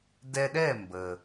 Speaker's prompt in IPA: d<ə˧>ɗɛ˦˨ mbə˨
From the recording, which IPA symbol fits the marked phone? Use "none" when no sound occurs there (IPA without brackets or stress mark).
ɛ˧